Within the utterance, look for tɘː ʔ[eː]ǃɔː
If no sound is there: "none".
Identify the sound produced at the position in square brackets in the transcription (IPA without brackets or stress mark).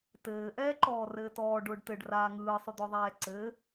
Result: ɛː